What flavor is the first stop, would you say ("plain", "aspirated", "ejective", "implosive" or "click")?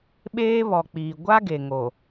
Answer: implosive